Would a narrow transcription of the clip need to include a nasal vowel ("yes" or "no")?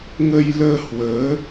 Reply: no